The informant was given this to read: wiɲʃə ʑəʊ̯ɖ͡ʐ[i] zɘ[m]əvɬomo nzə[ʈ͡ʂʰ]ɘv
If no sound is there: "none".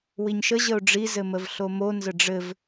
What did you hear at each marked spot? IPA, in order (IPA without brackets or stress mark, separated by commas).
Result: i, m, ɖ͡ʐ